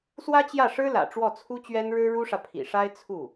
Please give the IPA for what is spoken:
s w ä˥ t͡ɕ j ä˥˩ ʂ ɻ̩˥ l ä̰˨˩ ʈ͡ʂ w ɔ˥˩ t͡sʰ u˥ t͡ɕ ɥ ɛ˥ n ɻ ɻ̩˥ ɻ u˥ ʂ ä˨ pʰ ḭ˨˩ ʂ a˥ ɪ̯ t͡sʰ u˥˩

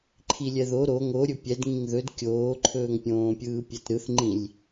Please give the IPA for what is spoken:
ǃʰ i lʲ ɛ ð o ɾ o ŋ o ɾʲ ɵ pʲ ɛ d ŋ ĩ ŋ ð ɵ d kʲ oː ǃʰ ɵː ŋ pʲ õː pʲ ɯː pʲ ɛ t ɾ ɯ θ ŋ͡ǃ ĩ lʲ

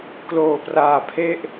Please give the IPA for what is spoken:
k l oː˨˩ p r aː˨˩ pʰ e˥˩ ʔ

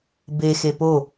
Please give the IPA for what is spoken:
b e x e p o

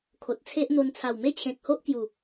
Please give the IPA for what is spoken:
kʰ o˨ t̚ t͡sʰ e˦ ʔ n̪ o˧ n t͡sʰ a˨˩ w m e˦ t͡ɕʰ ẽ˨ k̚ h o˦ ʔ k j u˨˩

